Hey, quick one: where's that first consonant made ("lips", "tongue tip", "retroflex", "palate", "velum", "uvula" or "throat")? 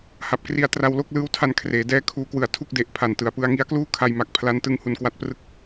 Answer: throat